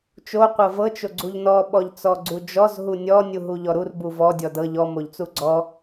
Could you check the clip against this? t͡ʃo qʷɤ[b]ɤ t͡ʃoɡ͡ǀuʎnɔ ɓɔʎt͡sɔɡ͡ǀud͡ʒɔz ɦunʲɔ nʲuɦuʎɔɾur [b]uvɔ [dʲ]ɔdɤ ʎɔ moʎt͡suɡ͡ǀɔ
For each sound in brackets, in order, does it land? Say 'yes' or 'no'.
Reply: no, yes, yes

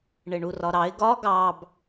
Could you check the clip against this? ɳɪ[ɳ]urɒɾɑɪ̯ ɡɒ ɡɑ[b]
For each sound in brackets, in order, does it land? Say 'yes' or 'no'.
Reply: yes, yes

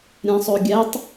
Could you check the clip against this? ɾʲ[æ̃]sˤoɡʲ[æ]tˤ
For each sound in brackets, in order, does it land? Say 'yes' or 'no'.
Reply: yes, yes

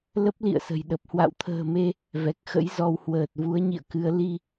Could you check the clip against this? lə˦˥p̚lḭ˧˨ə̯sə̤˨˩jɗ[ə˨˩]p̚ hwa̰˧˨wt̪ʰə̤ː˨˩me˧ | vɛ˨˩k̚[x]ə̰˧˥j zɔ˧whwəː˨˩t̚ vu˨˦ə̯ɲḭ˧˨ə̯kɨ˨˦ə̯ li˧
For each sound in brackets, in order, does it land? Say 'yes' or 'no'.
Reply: yes, yes

